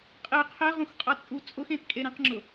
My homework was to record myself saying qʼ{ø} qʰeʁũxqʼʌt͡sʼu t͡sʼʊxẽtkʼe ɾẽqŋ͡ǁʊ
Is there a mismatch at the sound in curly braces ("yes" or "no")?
yes